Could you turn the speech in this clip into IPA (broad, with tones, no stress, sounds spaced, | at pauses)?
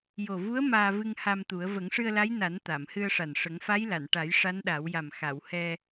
j o˨˩ v u˧˥ ə̯ m aː˧ v ɨ˧ ŋ h a˧ m t̪ u˨˩˦ ə̯ v ə˨˩˦ ŋ ʂ ɨ˧ ə̯ l a˧˥ j n a˨˩˦ n t̪ a˨˩˨ m h ɨ˧ ə̯ ʂ a˨˩ n ʂ ə˨˩˦ ŋ f a˧˥ j l a˨˩˨ n ʈ a˨˩˦ j ʂ a˧˥ n ɗ a˨˩˦ w j a˨˩ m x a˨˩˨ w h ɛ˧